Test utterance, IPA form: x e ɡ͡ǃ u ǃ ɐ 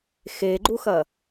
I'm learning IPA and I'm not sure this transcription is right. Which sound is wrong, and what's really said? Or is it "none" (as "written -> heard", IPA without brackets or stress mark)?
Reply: ǃ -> x